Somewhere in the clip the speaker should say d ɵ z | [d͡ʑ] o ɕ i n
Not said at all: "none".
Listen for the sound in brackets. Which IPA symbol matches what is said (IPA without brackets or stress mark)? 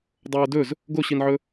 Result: ɡ